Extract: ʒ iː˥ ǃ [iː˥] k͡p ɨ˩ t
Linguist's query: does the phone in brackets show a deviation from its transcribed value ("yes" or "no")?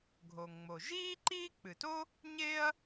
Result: no